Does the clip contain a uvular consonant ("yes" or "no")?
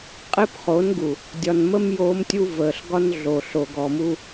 yes